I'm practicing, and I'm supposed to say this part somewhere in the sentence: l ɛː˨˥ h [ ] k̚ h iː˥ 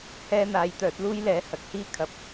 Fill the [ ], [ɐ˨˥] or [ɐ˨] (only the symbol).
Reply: ɐ˨˥